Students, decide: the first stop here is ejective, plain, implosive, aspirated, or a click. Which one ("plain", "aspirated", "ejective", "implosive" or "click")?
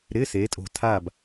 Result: ejective